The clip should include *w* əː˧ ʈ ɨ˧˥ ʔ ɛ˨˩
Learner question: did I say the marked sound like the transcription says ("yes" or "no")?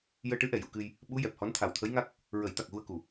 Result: no